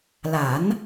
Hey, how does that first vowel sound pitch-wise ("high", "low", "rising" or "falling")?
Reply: rising